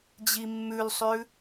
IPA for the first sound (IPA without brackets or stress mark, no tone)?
d͡ʑ